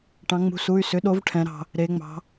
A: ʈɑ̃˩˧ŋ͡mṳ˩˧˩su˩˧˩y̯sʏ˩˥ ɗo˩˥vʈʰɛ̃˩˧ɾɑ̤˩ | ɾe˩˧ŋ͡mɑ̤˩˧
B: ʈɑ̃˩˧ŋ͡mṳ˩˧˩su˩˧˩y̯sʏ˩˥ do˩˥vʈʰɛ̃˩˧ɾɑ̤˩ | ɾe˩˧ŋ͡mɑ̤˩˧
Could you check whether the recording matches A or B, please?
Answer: A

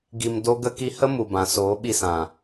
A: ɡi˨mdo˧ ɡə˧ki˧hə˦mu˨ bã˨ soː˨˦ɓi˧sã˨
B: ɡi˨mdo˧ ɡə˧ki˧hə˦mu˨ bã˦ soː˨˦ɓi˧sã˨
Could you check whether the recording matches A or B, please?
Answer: A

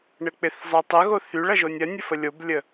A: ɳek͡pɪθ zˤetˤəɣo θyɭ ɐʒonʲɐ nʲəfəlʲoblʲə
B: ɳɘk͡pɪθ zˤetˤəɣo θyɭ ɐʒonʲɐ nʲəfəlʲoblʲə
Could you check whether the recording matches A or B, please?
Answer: B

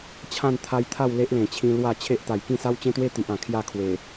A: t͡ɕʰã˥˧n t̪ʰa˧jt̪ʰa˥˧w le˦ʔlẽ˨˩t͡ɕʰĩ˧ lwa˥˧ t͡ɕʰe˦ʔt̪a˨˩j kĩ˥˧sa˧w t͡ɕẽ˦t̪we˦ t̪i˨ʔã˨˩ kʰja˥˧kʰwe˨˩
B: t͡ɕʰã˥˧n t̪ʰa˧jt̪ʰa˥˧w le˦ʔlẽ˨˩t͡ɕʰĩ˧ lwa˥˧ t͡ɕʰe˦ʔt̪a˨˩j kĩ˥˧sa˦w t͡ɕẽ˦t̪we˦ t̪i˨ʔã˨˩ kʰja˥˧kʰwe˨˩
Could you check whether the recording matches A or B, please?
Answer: B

